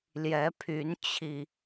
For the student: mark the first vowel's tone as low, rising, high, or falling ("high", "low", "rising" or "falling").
rising